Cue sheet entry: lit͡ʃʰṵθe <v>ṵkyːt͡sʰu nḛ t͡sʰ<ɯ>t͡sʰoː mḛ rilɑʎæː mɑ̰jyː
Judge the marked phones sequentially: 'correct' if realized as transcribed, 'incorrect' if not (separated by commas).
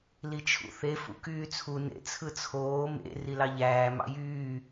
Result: incorrect, correct